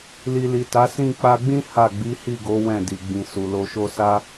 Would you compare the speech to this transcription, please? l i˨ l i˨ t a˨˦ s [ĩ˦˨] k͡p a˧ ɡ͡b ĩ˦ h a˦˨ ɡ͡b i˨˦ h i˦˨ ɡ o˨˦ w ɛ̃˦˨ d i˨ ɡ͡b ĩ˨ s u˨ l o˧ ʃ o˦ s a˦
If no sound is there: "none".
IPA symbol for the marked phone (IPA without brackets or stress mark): ĩ˦˨